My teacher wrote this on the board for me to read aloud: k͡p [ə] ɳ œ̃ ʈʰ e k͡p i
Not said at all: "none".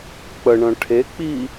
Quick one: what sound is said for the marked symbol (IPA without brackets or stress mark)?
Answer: ə